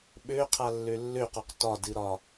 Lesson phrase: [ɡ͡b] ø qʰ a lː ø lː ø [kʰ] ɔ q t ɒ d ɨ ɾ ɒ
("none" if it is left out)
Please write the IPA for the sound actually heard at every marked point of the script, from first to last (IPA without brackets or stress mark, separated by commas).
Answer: ɓ, q